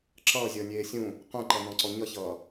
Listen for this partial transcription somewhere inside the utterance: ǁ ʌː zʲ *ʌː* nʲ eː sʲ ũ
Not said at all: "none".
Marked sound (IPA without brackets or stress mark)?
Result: ʌː